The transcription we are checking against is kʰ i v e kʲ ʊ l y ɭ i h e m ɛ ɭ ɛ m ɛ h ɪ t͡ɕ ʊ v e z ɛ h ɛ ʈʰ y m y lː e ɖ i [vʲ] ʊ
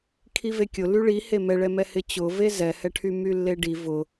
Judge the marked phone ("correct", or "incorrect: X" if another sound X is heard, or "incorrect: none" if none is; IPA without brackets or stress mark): incorrect: v